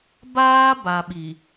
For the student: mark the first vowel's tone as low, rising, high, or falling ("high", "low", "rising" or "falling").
high